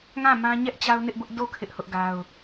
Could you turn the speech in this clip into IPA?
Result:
ŋ ã˦˨ m ã˦ ɲ ɛ˦ ʔ t͡ɕ a˦ ʊ̯ n ɪ˦ ʔ b ʊ˦ ʔ d o˦˨ kʰ ɪ˦ ʔ h ʊ˦ ʔ ɡ a˦ ʊ̯

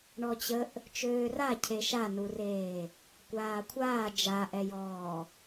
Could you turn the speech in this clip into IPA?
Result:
ɳ ɔ t͡ɕ ə ʔ | t͡ʃ øː r a cʰ e ʃ a n u r eː | kʷ aː kʷʰ aː d͡ʒ a ʔ ɛ j ɔː

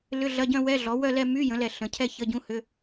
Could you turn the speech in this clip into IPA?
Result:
l ʏ˧˥˧ ɮ ɐ˧˥˧ ɟ œ̃˥˧ w ɛ˧˥˧ ɮ ɔ˩˥ w œ˥˧ l ɛ˥˧ m y˧˥˧ j ə̃˩˥ l ɛ˧˩ ɬ ə̃˩˥ cʰ ɛ˥˧ ç ə˧˥˧ ɟ ũ˧˥˧ h ʏ˧˥˧

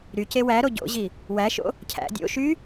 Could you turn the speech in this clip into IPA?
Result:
ɾ y c e w æ ɾ o ɟ o̰ ʑ i | w æ ʃ o̰ | cʰ æ̰ dʲ o̰ ʃ y

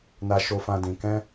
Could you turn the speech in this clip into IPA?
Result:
n a˦ ʃ o˦ f ã˦ d ĩ˧ k ɛ̃˦

